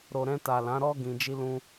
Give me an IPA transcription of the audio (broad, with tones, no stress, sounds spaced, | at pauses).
ɾ o˨ ɾ ɛ̃˧ t a˨ l ã˨˦ ɾ ɔ˦ ɡ ĩ˧ d͡ʒ i˦ l ũ˦